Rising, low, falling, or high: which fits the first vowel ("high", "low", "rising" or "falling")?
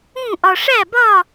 falling